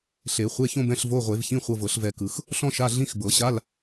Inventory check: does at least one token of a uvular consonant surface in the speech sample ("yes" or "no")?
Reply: yes